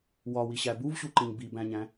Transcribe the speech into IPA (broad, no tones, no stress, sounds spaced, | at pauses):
w ɒ w i ɕ æ b u v ɕ u ǃ ĩ ɲ b i b æ̃ ɲ æ̃